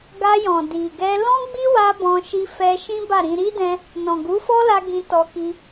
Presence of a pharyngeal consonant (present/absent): absent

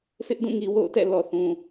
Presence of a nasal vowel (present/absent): present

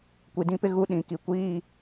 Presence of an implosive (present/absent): present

